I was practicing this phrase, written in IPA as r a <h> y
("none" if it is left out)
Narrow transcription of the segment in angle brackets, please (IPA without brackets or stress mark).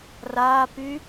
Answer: p